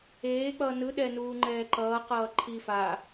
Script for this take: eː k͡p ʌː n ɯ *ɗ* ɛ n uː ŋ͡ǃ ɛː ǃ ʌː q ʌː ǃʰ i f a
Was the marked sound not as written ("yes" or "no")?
no